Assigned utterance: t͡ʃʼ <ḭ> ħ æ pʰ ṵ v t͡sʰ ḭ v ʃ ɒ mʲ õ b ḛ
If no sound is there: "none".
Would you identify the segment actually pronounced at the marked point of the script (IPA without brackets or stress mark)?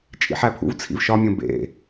ḭ